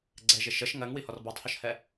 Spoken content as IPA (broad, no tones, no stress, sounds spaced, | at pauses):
ɡ͡ǀ ɛ ʒ ɪ ʃ ə ʃ ŋ ɜ ŋ w i h ɔ r b ɔ tˤ h ɔ ʃ h ɛ